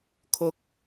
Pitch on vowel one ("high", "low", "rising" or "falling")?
rising